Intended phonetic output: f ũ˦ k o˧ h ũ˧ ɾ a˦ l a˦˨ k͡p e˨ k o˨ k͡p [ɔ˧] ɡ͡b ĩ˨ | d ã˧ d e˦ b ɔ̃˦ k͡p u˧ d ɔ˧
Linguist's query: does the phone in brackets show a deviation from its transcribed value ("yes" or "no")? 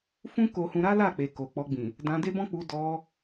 no